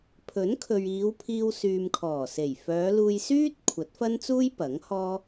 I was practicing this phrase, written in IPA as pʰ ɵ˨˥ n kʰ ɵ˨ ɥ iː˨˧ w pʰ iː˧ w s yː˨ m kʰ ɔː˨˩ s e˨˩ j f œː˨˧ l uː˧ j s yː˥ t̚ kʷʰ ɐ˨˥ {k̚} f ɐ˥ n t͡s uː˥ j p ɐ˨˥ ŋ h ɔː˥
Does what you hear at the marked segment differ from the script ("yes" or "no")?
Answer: yes